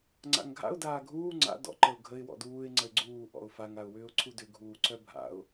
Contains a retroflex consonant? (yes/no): no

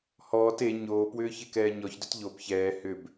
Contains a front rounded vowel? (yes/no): yes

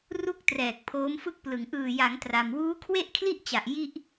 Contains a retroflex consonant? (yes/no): no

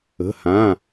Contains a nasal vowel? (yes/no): yes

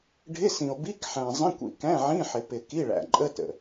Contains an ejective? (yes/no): yes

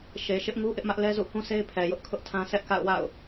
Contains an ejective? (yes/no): no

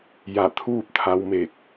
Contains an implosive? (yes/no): no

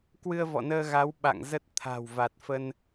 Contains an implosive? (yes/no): yes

